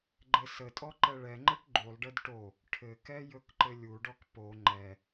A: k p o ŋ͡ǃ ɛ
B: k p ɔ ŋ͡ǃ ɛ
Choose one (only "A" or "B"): A